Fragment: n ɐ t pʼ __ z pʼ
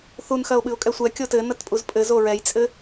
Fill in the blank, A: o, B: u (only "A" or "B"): B